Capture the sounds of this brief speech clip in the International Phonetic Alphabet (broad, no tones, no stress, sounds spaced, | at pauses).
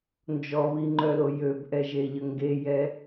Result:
n d͡ʒ ɔ β i ŋ͡ǃ œ l o j ø b ʔ ɛ ʒ e ʎ ə ŋ ɡ e j ɛ